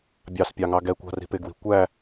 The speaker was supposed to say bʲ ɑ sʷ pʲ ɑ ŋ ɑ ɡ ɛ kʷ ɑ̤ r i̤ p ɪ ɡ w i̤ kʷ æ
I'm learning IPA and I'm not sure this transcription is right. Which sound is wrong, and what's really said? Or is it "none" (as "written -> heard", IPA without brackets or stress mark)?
sʷ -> s